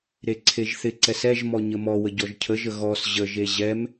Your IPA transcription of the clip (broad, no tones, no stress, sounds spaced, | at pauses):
ɾ e ǀʰ e ʒ θ ɪ ǀ ɛ s ɛ ʒ m ɔ ɲ ə m ɔ w ə ɟ ɔ ʒ cʰ ə ʒ ə ɣ ɔ s ʑ ə ʒ e ʑ ɛ m